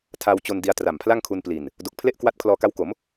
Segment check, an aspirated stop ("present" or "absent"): present